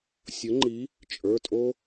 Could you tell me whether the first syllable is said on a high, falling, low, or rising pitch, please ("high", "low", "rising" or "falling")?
rising